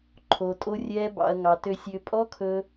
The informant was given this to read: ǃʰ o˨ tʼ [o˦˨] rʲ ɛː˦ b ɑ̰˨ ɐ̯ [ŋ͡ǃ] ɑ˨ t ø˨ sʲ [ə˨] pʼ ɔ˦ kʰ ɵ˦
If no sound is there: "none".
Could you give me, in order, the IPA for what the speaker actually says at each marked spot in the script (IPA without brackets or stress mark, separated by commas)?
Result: o˦, ŋ, ø˨